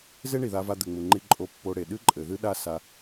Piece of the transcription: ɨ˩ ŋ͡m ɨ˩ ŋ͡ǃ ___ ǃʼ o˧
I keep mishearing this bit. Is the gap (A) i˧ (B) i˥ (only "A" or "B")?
A